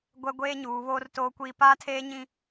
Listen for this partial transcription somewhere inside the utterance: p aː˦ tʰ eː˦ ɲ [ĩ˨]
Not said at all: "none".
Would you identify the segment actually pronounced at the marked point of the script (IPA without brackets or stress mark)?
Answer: ĩ˦